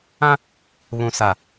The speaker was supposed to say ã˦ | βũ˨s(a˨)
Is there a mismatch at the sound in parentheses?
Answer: no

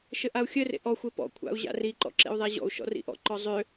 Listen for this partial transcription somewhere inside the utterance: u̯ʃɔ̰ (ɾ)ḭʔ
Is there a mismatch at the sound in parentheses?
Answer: yes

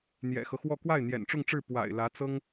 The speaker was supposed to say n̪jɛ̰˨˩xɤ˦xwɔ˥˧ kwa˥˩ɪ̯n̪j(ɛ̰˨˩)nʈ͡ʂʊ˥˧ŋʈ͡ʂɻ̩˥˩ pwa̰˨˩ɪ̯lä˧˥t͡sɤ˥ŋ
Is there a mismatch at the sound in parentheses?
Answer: no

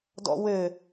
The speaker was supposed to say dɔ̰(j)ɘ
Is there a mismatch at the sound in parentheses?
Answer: yes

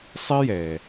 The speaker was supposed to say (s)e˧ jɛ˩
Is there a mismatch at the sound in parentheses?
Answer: yes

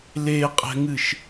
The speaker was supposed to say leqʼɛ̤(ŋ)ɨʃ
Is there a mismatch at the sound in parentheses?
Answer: no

